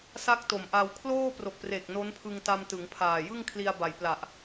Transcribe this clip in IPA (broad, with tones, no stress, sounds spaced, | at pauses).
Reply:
s a˥˩ k̚ t o˨˩ m ʔ a˧ w kʰ l oː˥˩ p r o˨˩ k̚ p r e˨˩ k̚ n o˦˥ n pʰ ɯ˧ ŋ t a˧ m t ɯ˩˦ ŋ pʰ aː˨˩ j ɯ˥˩ ŋ kʰ l i˧ a̯ b a˩˦ j p l a˨˩ ʔ